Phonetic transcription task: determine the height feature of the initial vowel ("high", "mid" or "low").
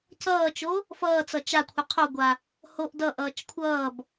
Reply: mid